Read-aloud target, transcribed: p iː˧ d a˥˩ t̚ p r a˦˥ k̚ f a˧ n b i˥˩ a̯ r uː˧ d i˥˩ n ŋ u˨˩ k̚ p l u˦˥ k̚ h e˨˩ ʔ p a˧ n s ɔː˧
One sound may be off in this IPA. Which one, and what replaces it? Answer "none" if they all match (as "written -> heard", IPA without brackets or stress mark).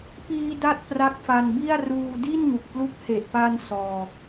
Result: none